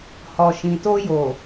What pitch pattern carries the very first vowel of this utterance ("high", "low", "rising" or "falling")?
low